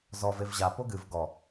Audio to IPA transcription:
z ɔ v e v ʑ a p o ɡ ɨ v ɡ ɔ

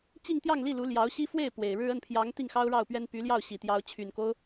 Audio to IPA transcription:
t͡ɕ i˥˧ ŋ t̪ j ɑ˥˧ ŋ l i˥˩ l u˧˥ l j ɑ˧˥ ʊ̯ ɕ i˥ f w e˥˩ ɪ̯ p w e˨˩ ɪ̯ ɻ ɻ̩˥ ə˥˩ n pʰ j ɑ˧˥ ŋ t̪ i˥˩ ŋ x ɑ˥ ʊ̯ ɻ ɑ˥˩ ʊ̯ p ɥ ɛ˥ n p y˧˥ l j ɑ˥˩ ʊ̯ ɕ i˨˩ t̪ j ɑ˧˥ ʊ̯ t͡ɕʰ y˨˩ n k o˦ ʊ̯

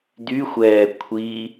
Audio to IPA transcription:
d̪ y xʷ ɛː kʷʰ i

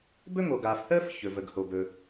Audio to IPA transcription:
b ɵ˥ ŋ o˩ ɡ aː˩ f θ əː˥ f ç ɵ˩ v ə˩ ɡ h o˩ b ɵ˩

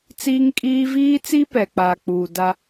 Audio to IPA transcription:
t͡s iː˦ ŋ kʼ iː˦ v iː˦ t͡s i˦ p ɛ˨ k͡p aː˨ k͡p uː˨ d a˦

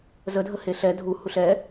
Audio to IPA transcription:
z ə dʱ ə h e ɬ ɛ dʱ u h u ɬ ɛ

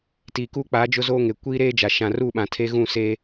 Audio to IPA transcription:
t iː˨ k uː˦ k͡p aː˨˦ d͡ʒ ʊ˦ z oː˦ ŋ e˨ kʷ iː˦ ɾ eː˦ d͡ʒ a˨ ʃ ã˨ r u˦˨ ɓ ã˨ tʰ e˦ ɣ ũ˦˨ s eː˦

